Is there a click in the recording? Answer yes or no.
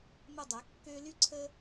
yes